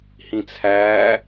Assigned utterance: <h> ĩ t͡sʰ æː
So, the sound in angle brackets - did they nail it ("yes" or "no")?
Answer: yes